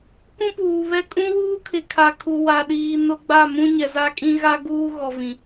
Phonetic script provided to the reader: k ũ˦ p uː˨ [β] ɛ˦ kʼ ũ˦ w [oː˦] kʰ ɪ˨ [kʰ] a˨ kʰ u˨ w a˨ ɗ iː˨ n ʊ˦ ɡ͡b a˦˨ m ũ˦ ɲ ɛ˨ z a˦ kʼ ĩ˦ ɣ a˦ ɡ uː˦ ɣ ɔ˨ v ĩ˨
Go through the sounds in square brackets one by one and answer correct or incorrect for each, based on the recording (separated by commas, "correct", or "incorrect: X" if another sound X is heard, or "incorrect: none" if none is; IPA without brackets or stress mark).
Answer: correct, incorrect: uː˦, correct